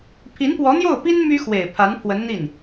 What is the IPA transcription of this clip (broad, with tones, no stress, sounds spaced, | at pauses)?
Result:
pʰ i˧˥ n p w ɔ˧˥ n̪ j o˥˩ ʊ̯ p i˥ n m y˥ x w e˨˩ ɪ̯ pʰ a˧˥ n pʰ w ə˧˥ n n̪ i˥˩ n